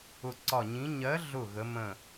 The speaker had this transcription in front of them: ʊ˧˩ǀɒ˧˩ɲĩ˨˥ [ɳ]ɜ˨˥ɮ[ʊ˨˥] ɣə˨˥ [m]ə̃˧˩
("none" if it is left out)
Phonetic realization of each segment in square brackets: ɲ, ʊ˧˩, m

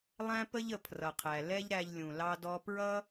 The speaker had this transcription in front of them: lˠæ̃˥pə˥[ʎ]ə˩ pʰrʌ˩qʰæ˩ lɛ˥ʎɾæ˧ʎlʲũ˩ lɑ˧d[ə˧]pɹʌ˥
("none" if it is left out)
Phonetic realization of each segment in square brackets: ʎ, ɔ˧

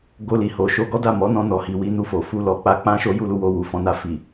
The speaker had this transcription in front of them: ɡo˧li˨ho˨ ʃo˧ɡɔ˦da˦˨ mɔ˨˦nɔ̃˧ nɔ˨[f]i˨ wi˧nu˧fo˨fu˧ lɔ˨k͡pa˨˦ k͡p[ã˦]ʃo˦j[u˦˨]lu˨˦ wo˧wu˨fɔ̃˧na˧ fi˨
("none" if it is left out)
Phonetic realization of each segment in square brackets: h, ã˦, u˦˨

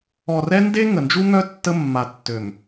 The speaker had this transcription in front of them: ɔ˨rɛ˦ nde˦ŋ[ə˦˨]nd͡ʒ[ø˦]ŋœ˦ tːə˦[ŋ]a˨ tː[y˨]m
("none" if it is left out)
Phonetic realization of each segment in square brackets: ə˨, u˦, mː, ø˨

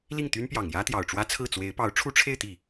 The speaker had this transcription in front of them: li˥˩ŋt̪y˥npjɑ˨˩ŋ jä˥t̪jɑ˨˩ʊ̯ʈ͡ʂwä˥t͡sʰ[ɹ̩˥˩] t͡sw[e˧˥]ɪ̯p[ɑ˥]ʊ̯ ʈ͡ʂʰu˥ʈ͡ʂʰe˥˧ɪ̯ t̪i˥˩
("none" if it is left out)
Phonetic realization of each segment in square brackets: ɹ̩˥˩, e˧˥, ɑ˧˥

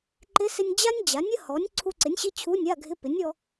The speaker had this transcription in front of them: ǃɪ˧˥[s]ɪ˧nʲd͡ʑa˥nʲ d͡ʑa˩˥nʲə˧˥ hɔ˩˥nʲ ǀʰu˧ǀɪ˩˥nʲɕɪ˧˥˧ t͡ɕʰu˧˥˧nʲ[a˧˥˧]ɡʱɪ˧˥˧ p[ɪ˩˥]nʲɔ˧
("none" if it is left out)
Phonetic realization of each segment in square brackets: s, a˧˥˧, ɪ˩˥

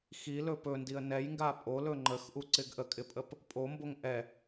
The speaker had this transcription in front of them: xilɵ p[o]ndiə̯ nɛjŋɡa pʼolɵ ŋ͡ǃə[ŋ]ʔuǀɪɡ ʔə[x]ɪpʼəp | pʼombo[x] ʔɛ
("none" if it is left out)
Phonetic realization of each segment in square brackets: ɵ, x, kʼ, ŋ

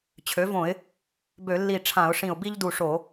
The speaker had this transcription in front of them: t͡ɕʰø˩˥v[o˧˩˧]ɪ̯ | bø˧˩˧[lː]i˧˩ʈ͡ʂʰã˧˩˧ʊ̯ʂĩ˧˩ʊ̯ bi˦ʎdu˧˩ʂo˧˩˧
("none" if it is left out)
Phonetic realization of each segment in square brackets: õ˧˩˧, lː

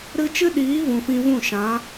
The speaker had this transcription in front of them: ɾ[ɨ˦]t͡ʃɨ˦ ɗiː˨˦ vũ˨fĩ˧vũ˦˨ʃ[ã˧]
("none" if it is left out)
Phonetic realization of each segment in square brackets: ɨ˧, ã˨˦

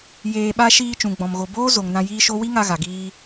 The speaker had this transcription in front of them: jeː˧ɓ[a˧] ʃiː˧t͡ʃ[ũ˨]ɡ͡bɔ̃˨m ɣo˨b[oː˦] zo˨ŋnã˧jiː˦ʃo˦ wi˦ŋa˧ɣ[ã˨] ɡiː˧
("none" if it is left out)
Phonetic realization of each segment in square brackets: a˦, ũ˨, oː˦, a˨

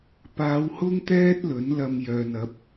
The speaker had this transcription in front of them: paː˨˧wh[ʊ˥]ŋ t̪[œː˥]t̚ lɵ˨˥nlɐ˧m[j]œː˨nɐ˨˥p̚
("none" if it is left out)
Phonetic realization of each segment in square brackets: ʊ˥, ɛː˥, j

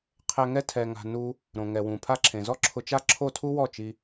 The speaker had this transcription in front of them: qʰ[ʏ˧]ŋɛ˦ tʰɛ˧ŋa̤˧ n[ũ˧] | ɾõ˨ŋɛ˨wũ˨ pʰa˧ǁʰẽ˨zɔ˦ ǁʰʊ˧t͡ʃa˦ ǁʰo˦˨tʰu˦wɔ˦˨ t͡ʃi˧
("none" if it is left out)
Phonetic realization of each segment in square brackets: ɛ˧, u˧

